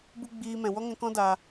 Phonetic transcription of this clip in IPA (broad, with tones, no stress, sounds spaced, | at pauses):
b u˦ ɡ͡b iː˧ m ɛ̃˨ w ɔ˦ ŋ ɛ̃˧ k ɔ̃˦ d a˧